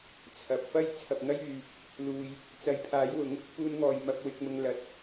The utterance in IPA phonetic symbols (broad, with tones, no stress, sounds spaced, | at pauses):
t͡sʰ ɐ˨˥ p̚ f ɐ˥ j t͡sʰ ɐ˨ p̚ ŋ ɐ˥ j yː˨ | l uː˨ j | t͡s ɐ˨˥ j pʰ aː˨˥ j w ʊ˨˥ ŋ | p uː˧ n ŋ ɔː˨ j m ɐ˧ p̚ w ɪ˨˥ k̚ m ʊ˧ ŋ l ɐ˨˥ t̚